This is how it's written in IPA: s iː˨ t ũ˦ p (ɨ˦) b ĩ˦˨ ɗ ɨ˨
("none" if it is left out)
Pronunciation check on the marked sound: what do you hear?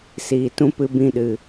ɨ˦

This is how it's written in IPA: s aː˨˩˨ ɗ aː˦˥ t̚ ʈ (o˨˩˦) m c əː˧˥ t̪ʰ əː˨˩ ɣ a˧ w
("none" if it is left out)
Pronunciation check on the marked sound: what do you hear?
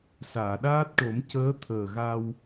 o˨˩˦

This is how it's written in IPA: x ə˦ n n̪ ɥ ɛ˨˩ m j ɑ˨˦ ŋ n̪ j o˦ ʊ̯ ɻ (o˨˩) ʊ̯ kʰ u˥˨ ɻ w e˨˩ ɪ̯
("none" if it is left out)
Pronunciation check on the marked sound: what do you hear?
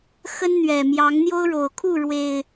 o˨˩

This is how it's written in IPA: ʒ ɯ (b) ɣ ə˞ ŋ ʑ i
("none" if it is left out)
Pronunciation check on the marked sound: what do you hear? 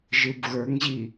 b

